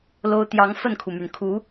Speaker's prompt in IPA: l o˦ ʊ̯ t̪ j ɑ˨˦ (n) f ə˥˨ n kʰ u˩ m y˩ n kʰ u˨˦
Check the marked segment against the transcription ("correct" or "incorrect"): incorrect